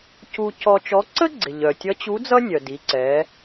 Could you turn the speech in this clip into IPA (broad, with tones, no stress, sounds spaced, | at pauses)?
c u˧ c ɔ˧ t͡ʃ ɔ˧˥ ǀ ə˥ ɡ͡ǀ ɪ˩ ʎ œ˩ tʲ ʌ˧˥ t͡ɕ u˧˥ d͡z ʌ˥ nʲ œ˩ d i˩˧ ǀ ɛ˩˧